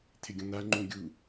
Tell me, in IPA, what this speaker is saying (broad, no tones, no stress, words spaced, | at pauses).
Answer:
t̪ʰɪɡʲɔ̃n̪a ŋ͡ǃũɡʲu